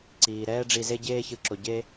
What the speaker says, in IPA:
ǀ iː˩ ɾ ɛː˦ ɖ͡ʐ i˨ z e˦ ɟ eː˦ ç ɯ˨ ǁ o˩ ɟ e˥

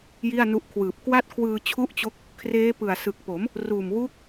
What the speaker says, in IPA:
j i˥˩ a̯ n u˦˥ ʔ kʰ w ɯː˨˩ p̚ k w a˥˩ t̚ kʰ w ɯː˧ t͡ɕʰ u˥˩ ʔ t͡ɕ o˦˥ k̚ | kʰ r eː˦˥ p ɯ˨˩ a̯ s ɯ˨˩ k̚ p o˩˦ m | r uː˨˩ m w uː˦˥ k̚

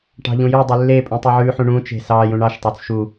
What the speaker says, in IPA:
ʈ ɑ̤ ʎ ũ j ʉ dˤ y lː e pʼ ũ tˤ y ʕ ʉ ħ ũ ɳ ũ t͡ʃ e̤ s ɑ j ũ ɳ ɑ ʃ tˤ ø t͡s ʃ u

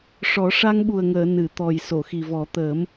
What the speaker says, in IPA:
ʂ ɔ˨˩˦ ʂ a˧ ŋ ɓ u˨˩ ə̯ ŋ əː˨˩˨ n ɨ˨˩˨ t̪ ɔ˨˩ j s o˨˩˨ x i˨˩ v ɔ˨˩˦ t̪ əː˨˩˦ m

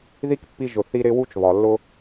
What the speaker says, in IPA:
ð i˥ k pː i˦ ʒ ʊ˨ θ i˦ ɾ ɪ˦ w u˥ t͡ʃ β ɒ˨ lː ʊ˥

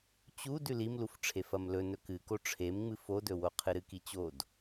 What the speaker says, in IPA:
t͡ɕ u d ʉ l i m l u f ʈ͡ʂʰ e f ɐ m l ɵ n ɵ k ɨ k o ʈ͡ʂʰ e m ŋ͡m ɨ f o d ɵ w o qʰ ɨ ɾ ɨ k i t͡ɕ o d

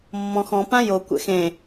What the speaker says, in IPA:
mː ɔ̃ x ɔ̃ p ã j o kʷ ɛ̰ x ẽ

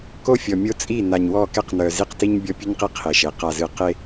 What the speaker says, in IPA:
k o˦ fʲ ɔ˨ mʲ o˦ t͡sʼ i˦˨ n a˨ ɲ w ɔ˦˨ k ɛ˦ q n œ˨ z i˦ q t i˦ ɲ bʲ ɔ˦ pʲ ɨ˦ ɲ q i˦ qʰ e˨ ʃ e˨ q a˨ z ɨ˨ q e˦

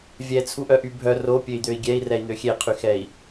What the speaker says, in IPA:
vʲ ɛ t͡sʰ u ʔ œ ʔ y bʱ œ r o pʲ ø i̯ d̪ ø i̯ ɡʲ ɛ i̯ r ɛ i̯ n̪ ø xʲ e qʰ y x ɛ i̯

